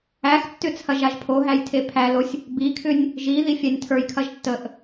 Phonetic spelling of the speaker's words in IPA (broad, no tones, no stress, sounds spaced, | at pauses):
æ x tː ʏ t͡sʰ ɐ ʒ a ʒ pʰ o ɦ æ j tʰ e pʰ æ l o sʲ | b i kʰ ʏ nʲ | ʒ i ð i fʲ æ nʲ tʰ ə˞ j kʰ ɐ ʒ tː ə ʔ